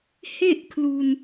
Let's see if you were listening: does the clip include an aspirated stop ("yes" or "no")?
yes